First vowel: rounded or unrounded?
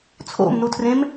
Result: rounded